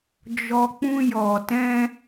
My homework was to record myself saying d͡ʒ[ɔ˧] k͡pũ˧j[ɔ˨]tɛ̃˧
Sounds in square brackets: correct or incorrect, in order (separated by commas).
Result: correct, correct